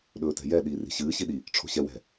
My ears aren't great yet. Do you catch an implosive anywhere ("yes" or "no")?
yes